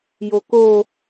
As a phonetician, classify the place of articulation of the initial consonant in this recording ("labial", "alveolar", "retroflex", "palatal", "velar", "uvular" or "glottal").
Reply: palatal